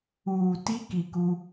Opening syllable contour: low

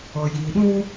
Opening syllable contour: low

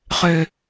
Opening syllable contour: low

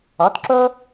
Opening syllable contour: rising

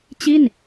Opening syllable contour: falling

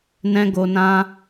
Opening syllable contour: high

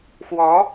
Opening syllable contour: rising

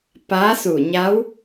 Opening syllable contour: rising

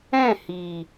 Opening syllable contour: falling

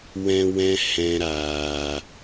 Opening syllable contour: high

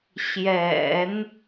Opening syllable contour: low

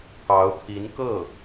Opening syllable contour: rising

